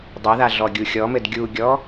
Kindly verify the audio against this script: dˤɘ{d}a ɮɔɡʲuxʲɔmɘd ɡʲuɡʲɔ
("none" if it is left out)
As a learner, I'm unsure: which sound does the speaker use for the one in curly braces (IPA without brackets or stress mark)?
ð